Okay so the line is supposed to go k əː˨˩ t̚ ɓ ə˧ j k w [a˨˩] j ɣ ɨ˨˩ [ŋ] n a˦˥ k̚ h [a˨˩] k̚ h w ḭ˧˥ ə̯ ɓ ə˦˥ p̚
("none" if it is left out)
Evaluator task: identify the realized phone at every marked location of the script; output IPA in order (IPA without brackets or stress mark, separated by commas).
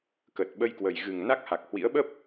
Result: ə˨˩, ŋ, a˨˩